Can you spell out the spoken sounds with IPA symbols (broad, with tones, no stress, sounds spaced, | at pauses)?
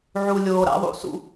ʕ u˨ lʲ oː˨ ɾ a̰˦ ðˤ ṵ˦ s ṵ˦